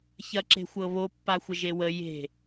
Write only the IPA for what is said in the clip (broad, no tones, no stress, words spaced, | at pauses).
çɐǁe̤xʷɤβo pːaxʷəʒewə je̤